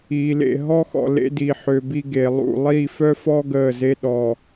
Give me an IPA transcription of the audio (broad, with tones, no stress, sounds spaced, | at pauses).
iː˨ l ḛ˦˨ ɦ ɔ˦ x ɔ̰˨ l ḛ˦ d i˨ ħ ø˨ b i˦ ɡ e˨ lˠ ṵ˦˨ lˠ i˦˨ f œ˦ f ɔ˦ ɡ əː˦˨ z e˦ ɗ ɔ˨